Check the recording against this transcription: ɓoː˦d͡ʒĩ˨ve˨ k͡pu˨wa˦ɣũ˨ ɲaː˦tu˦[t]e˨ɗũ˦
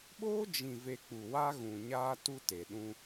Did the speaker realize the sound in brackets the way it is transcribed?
yes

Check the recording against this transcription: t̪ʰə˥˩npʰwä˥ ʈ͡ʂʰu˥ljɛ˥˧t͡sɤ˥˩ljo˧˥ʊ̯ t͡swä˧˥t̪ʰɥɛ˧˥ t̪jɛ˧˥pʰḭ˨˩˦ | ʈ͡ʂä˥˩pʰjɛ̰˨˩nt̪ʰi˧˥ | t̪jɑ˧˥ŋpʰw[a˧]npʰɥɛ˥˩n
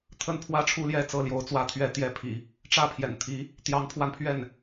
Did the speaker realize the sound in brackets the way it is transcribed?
yes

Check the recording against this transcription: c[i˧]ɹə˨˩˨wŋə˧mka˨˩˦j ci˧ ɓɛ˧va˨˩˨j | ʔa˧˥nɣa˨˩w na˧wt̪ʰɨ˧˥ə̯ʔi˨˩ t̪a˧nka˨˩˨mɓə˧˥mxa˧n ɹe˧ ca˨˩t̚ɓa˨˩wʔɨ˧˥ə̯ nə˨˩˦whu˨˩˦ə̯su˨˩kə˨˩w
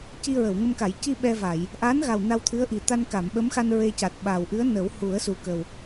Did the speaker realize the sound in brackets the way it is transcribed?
yes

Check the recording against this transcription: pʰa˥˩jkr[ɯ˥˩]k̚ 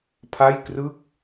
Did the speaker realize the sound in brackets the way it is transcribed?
yes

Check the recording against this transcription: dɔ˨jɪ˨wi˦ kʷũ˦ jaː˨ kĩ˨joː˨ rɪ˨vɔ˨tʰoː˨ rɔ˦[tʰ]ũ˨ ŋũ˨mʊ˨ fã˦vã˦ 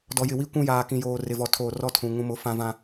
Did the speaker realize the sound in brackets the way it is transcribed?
yes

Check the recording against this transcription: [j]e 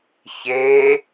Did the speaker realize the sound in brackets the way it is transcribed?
no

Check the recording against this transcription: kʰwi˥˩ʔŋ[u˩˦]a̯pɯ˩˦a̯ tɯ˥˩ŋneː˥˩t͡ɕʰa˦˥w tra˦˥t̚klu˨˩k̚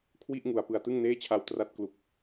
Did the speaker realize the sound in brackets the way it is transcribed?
yes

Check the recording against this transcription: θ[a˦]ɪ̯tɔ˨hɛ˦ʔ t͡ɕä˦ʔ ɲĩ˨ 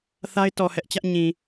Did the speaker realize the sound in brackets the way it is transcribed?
yes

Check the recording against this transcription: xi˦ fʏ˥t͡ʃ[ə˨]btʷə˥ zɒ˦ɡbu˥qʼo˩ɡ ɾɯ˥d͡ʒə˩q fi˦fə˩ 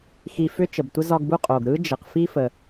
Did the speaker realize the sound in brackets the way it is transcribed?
yes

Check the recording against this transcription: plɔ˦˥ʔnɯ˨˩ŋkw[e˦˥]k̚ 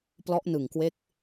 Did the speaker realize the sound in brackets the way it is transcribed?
yes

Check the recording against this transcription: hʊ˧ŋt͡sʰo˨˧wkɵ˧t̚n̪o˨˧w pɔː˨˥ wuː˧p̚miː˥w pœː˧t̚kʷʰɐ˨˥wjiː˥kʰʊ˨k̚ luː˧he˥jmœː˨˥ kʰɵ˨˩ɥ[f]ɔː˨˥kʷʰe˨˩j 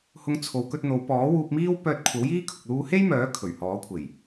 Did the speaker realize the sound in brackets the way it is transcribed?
no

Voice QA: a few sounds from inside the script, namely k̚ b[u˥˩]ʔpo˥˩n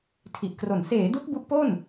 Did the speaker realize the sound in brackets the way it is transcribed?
no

